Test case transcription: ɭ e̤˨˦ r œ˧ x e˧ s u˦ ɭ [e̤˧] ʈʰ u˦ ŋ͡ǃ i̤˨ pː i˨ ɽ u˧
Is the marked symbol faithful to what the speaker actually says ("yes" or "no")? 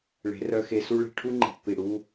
yes